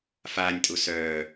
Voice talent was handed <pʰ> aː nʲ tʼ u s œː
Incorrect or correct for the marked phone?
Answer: incorrect: f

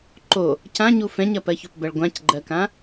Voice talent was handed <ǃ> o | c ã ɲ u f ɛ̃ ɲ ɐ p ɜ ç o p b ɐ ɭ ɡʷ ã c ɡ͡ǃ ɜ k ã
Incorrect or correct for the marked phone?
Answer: correct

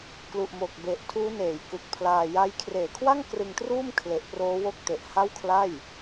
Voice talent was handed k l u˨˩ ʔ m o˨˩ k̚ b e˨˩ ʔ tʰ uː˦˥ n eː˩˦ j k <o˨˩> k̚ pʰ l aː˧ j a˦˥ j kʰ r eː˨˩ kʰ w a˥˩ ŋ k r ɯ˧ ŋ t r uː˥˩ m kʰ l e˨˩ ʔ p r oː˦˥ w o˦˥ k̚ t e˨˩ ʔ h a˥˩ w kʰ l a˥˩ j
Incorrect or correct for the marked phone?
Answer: incorrect: u˨˩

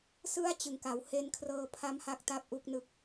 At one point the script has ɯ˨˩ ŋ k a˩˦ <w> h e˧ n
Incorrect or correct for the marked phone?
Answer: correct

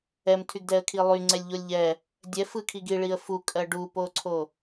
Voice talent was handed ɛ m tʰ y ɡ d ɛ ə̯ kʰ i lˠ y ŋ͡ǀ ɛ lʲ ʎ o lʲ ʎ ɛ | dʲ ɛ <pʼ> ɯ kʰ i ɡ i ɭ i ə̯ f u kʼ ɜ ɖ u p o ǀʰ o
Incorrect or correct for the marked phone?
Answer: incorrect: f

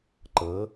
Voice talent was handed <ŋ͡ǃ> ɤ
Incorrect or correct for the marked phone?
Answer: incorrect: ǃ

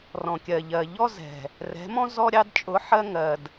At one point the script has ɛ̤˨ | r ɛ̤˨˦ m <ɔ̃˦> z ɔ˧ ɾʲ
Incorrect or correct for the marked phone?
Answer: correct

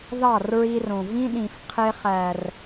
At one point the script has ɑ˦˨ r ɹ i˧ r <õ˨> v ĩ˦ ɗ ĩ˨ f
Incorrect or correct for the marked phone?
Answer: correct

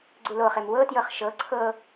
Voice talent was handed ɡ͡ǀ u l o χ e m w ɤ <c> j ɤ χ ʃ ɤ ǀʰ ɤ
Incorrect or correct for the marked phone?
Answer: incorrect: t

